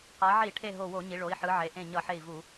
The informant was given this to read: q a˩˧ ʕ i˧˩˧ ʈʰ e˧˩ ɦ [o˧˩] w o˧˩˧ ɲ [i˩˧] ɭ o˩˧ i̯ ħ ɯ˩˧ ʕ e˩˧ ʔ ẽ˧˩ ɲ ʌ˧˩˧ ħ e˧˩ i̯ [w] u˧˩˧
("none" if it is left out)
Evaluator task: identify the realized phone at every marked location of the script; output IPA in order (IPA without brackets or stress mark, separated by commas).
o˧˩, i˩˧, v